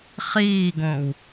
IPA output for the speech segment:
χ iː ɡ õ w

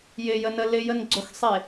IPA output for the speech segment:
j ɪ j ə n ə l ɪ j ə n ɡ͡ǀ o x sˤ e

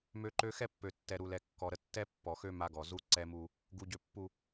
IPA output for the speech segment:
m ø˦ ǃ ø˦ x ɛ˦ pː ø˨ tː ɛ˨ ɾ u˨ l ɛ˨ kː ɔ˨ ɾ ə˨ tː ɛ˦ pː ɔ˨ x ø˦ m a˦ ɡ ɔ˨ z u˦ ǀ ɛ˦ m u˦ | ɡ u˨ ɟ ø˨ pː u˨

